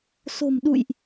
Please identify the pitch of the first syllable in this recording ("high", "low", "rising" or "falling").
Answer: low